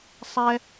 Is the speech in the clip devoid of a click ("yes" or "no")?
yes